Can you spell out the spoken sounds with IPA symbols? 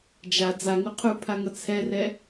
d͡ʒ a d͡z a ŋ u qʰ u pʰ a ŋ ʌ t͡sʰ ɛ r ɛ

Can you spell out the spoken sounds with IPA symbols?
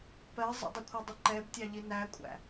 p ɜ zˤ ə̰ dˤ ɪ kʷʰ ɜ dˤ ɪ ǃ ɛ b tʲ ɑ ʎ i n æ kʷʼ æ̰

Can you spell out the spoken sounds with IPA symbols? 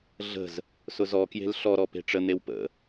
ɮ ə̤ z | s ʊ z ɔ k j e̤ l ɬ ɔ ɾ ɔ p e̤ ʈ͡ʂ ə n̪ e w p ə̰

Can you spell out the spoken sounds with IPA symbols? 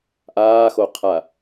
ʔ aː x o qʰ a

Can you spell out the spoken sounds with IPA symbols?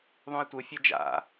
ðˤ ũ e̯ tʷ ɯ fʲ ʌ d͡ʒ a̰

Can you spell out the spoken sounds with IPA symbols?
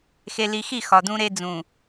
x e˨ l i˨ x i˦˨ x ɒ˨ d ũ˦ ɾ e˦ d͡z ũ˨

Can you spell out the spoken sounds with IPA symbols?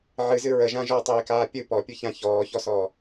ʕ ɨ z ɨ ɹ ə ʒ ã ʒ ɔ tˤ iː k aː pʲ ɨ p ɔ pʲ ɨ ç ã ç ɔː ç ɔ s ɔː

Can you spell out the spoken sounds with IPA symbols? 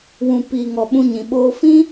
w ũ˨ p iː˨ ŋ ɔ˨ ɓ ũ˧ ɲ ĩ˨ ɓ oː˧ f ĩ˦

